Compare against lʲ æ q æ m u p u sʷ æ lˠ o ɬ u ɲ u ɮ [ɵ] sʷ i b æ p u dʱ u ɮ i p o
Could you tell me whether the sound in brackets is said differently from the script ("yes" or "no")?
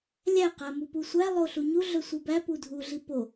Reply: no